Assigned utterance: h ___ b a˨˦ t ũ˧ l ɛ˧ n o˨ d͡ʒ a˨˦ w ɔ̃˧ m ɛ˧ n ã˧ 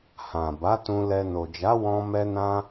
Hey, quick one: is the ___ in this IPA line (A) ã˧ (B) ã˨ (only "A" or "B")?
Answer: B